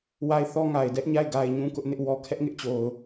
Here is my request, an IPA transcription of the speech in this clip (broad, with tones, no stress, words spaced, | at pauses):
wa˦˨ɪ̯ θɔ˦ŋa˨ɪ̯dɛ˦ʔɲa˦˨ɪ̯ ɡa˨ɪ̯ ɲũ˦ kʊ˦ʔnɪ˦ʔwɔ˦ kʰɛ˦ʔŋɪ˦ʔt͡ɕo˨ʊ̯